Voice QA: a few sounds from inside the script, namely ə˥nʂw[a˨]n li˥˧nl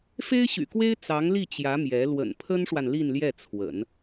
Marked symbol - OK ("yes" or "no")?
yes